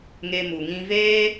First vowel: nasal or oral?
oral